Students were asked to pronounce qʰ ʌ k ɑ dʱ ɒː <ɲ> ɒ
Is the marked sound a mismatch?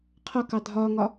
yes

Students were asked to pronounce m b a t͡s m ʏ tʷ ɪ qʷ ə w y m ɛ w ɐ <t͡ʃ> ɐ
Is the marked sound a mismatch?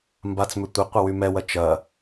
no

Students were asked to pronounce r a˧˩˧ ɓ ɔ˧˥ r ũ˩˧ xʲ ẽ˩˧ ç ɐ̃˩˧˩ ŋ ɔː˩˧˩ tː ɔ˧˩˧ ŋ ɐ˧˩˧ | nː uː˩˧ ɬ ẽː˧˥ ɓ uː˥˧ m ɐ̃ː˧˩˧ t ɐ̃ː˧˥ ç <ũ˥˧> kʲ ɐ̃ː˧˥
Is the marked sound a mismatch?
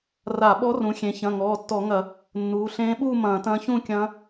no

